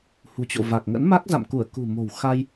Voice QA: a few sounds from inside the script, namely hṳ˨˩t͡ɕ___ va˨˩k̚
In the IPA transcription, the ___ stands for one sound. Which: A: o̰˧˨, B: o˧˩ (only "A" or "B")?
A